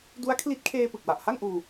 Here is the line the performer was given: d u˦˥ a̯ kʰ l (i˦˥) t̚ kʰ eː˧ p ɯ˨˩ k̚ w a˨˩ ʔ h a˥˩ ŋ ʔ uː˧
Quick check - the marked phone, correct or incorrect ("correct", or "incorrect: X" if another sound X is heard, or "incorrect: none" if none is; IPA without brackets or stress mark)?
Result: correct